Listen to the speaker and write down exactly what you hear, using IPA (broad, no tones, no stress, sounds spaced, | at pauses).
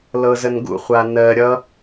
l ɤ z ə n ɡ ṵ χʷ a n ɜ ɾʲ ʌ